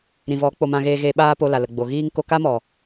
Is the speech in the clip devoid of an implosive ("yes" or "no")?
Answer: no